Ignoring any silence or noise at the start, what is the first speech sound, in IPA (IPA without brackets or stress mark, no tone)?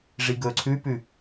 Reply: ʐ